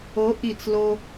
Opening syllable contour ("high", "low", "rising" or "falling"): rising